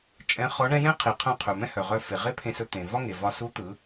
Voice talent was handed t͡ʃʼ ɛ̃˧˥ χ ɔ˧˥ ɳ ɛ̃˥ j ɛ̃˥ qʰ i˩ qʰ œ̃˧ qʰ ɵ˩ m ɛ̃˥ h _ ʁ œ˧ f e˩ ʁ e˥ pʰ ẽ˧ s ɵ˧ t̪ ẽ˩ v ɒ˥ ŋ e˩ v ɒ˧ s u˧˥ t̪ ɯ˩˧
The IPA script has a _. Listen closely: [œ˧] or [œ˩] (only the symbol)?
œ˩